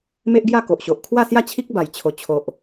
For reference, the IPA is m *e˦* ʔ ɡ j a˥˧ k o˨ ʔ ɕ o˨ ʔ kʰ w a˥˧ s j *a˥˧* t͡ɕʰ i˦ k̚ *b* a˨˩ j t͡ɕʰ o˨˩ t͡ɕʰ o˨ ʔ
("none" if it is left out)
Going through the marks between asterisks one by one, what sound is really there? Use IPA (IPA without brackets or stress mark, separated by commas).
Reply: e˦, a˥˧, b